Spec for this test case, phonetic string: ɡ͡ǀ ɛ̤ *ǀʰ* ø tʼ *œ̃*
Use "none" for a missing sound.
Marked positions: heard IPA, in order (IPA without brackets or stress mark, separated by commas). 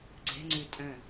ŋ͡ǀ, œ̃